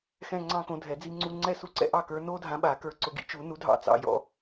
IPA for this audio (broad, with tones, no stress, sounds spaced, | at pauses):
x ɛ̃˥˧ ŋ͡ǀ ɑ̃˥˧ k õ˨˥ dʱ ɛ˨˩˦ d͡z i˥˧ ŋ͡ǀ u˥˧ ŋ͡ǀ ɛ˥˩ s u˦˥ ǀ ɛ̰˥˧ ʔ ɑ˥˩ k ə˞˨˥ n o˦˥ dʱ ã˨˥ ɓ a˨˩˦ k ə˞˨˥ ǀ ʊ˨˩˦ ɡ ḭ˨˥ t͡ʃ u˨˩˦ n u˨˥ dʱ ɑ̰˦˥ t͡s ɑ̰˥˩ j ɔ̰˥˧